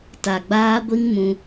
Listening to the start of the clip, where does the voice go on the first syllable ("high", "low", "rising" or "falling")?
low